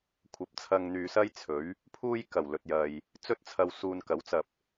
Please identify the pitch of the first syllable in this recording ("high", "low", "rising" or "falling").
low